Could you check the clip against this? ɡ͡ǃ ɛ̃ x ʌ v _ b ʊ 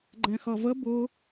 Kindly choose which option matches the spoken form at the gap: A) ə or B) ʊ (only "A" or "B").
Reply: A